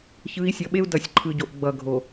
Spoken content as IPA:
ç ɯ˨˦ i̯ sʲ ʌ˨ ɓ e˦ u̯ d ʌ˨ sʲ ǃʰ ɯ˨ ɟ o˨ ʔ ɡ͡b ʌ˨ ɡʱ o˨

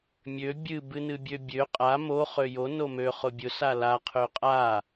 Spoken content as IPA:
mʲ ø bʲ ɨ b ɨ n ɨ bʲ ø bʲ ø qʼ a m o χ ø j o n o m ø χ ʊ bʲ ʊ s a l a qʰ ø qʼ a

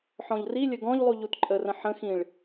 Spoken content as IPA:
ħ ɔ̃ ʎ r i lʲ ə ɡ ɔ̃ ʎ lˠ u ʎ u t ǃʼ ə r ə̃ ħ ə̃ x ĩ ɭ

